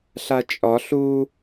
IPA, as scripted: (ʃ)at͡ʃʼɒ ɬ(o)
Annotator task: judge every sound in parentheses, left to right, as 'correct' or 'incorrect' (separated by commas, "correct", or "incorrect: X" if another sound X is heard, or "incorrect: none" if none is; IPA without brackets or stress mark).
incorrect: ɬ, incorrect: u